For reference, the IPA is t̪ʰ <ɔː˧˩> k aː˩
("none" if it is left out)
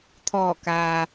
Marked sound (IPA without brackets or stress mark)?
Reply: ɔː˧˩